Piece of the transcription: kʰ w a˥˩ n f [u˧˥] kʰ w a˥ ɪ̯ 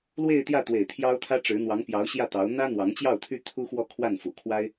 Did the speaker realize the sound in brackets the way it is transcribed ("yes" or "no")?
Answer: no